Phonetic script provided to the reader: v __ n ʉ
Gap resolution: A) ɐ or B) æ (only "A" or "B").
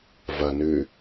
A